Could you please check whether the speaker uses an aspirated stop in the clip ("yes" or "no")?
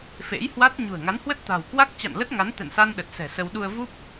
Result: no